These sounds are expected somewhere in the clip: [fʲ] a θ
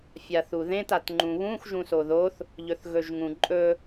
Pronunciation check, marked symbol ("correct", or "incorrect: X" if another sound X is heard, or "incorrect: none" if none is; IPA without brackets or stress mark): correct